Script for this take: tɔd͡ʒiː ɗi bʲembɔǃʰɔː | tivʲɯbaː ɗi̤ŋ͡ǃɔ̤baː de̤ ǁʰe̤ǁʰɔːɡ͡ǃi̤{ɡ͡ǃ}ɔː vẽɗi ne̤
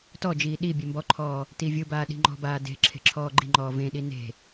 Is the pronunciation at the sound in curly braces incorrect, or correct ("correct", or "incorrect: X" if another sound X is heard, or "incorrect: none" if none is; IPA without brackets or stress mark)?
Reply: incorrect: ŋ͡ǃ